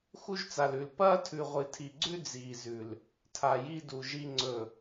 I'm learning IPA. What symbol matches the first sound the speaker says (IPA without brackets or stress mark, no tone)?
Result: x